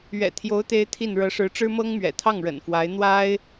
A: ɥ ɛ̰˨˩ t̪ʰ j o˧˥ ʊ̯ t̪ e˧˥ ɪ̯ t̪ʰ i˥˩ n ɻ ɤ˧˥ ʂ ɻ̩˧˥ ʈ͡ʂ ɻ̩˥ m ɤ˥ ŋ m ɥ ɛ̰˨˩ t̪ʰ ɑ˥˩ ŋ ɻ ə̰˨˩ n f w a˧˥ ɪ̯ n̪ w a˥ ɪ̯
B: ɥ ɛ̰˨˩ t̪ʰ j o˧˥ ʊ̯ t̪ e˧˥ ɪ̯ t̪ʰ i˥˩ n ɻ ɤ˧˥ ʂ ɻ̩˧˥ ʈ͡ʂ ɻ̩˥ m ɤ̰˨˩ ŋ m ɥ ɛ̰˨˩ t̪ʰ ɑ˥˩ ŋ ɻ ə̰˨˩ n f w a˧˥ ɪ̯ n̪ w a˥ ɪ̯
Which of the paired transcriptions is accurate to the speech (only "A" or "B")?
A